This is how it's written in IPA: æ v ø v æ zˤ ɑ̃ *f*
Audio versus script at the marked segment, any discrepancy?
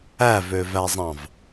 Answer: yes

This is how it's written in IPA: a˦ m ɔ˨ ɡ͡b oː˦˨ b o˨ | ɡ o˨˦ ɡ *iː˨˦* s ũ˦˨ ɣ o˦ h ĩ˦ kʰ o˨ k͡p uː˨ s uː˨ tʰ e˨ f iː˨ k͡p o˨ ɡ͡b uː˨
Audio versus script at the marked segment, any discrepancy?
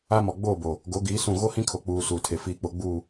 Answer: no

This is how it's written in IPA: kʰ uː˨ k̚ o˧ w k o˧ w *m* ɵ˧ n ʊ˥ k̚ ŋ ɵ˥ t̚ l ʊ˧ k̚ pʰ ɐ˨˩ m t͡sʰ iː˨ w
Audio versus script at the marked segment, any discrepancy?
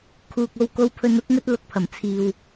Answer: yes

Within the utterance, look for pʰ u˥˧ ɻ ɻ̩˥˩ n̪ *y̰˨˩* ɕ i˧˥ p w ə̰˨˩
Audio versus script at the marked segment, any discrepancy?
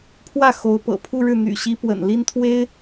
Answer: no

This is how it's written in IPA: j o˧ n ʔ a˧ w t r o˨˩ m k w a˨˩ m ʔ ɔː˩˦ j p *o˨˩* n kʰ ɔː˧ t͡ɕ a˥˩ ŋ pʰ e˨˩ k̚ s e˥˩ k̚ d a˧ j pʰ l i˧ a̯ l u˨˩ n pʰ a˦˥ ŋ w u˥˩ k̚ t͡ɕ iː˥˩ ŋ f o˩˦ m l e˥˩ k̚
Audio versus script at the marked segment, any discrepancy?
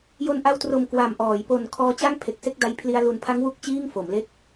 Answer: no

